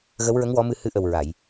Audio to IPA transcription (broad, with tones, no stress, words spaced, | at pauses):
ɣə˧˥wɹə˧˥ŋ wɔ˧˥mɨ˧ hɨ˧˥ʔə˨˩wɹa˨˩˨j